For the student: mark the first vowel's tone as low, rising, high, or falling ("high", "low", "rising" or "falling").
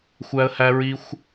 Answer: high